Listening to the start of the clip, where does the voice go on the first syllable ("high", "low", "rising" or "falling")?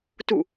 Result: falling